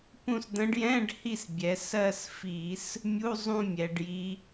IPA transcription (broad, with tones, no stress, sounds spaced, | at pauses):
p ũ˦˨ s d̪ ə̃˧˥ ɖ j ɛ̃˧˥˧ ɖ h i˦˨ s bʲ ɛ˩˧ s ɜ˦˨ s f i˧˩˧ s | mʲ u˧˥˧ zˤ ũ˦˨ mʲ ɛ˩˧ ɖ j i˧˥